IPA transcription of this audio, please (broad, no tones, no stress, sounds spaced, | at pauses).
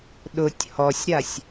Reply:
ɗ ʊ tʲ h ɔ sʲ ɾ a sʲ